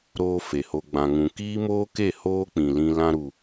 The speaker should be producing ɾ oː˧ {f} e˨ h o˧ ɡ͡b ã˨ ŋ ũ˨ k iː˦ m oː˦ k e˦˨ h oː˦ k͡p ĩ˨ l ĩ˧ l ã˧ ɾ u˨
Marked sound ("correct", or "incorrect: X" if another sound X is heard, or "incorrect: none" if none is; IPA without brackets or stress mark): correct